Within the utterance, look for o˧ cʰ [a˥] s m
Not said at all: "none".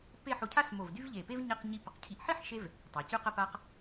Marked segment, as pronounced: a˥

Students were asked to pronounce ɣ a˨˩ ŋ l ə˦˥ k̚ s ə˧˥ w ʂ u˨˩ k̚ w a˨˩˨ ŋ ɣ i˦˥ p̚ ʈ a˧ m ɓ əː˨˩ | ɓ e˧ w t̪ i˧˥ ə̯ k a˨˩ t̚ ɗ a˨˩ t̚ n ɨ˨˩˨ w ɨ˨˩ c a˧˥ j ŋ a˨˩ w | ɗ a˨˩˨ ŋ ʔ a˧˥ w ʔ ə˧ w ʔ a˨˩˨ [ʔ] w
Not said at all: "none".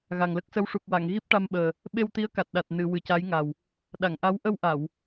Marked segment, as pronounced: none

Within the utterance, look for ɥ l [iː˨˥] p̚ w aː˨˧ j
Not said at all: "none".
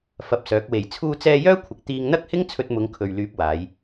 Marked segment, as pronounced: yː˨˥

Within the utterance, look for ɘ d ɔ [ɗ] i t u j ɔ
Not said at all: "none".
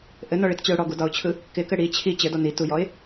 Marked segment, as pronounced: n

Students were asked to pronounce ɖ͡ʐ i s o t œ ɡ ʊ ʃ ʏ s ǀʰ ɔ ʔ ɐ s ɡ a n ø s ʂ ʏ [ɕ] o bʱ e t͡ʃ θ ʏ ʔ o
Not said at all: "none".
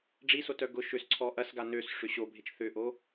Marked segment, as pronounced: ɕ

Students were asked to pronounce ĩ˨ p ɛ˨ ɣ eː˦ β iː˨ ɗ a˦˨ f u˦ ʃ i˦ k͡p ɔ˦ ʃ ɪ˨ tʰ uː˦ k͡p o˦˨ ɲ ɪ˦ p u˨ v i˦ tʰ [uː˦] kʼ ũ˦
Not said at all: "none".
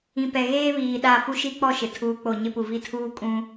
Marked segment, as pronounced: uː˦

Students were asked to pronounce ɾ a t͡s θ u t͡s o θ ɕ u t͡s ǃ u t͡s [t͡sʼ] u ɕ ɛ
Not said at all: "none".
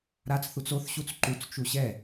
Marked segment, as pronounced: t͡ʃ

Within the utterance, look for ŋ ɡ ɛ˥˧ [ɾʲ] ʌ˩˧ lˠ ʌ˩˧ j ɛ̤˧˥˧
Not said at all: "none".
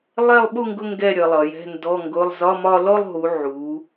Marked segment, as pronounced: ɾʲ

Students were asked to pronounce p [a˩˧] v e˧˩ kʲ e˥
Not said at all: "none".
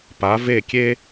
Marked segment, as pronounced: a˩˧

